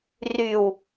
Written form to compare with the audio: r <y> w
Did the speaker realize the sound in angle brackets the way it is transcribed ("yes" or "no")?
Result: yes